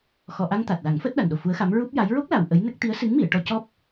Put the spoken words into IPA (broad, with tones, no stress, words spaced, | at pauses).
xɔ˨˩ʔa˧ŋ t̪a˨˩t̚la˨˩˦ŋ fəː˦˥t̚ɗa˨˩nɗo˨˩ fu˧˥ə̯xa˧˥m ɹu˦˥p̚ja˧˥j ɹo˦˥k̚la˨˩w ʔə˧˥jnə˦˥k̚ t̪i˧˥ə̯sɨ˧˥ŋmi˨˩˨ə̯ ʈɔ˧cɔ˦˥p̚